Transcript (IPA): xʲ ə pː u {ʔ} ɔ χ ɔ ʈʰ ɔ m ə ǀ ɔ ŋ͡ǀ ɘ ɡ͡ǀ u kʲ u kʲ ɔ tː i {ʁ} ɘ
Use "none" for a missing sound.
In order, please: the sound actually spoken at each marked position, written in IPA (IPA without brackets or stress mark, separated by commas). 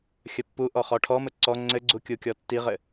ʔ, ʁ